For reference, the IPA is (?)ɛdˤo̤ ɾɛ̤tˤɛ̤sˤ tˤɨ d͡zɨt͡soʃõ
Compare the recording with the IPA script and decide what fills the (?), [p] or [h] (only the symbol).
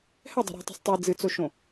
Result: h